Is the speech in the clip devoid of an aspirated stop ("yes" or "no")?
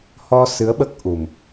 yes